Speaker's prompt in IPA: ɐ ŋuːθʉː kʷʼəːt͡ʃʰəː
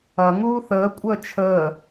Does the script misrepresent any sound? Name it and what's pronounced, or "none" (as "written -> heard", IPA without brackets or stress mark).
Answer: ʉː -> əː